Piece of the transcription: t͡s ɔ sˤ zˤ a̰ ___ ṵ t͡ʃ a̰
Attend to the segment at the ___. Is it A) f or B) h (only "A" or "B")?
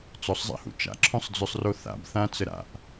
B